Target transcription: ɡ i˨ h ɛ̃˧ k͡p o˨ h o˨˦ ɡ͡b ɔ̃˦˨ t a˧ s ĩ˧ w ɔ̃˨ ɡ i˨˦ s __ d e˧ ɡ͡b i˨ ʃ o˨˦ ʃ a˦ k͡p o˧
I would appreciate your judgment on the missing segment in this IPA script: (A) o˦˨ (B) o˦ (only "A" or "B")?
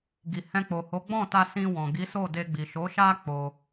A